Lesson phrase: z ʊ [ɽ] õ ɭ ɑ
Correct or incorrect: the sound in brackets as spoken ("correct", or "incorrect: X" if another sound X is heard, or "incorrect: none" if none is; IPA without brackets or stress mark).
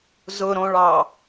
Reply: incorrect: ɾ